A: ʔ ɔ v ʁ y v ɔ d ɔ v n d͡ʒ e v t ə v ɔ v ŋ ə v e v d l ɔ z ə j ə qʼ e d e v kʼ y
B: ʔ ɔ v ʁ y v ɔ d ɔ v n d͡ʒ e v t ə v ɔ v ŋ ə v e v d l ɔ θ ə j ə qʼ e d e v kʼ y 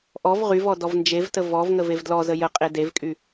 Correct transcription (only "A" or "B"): A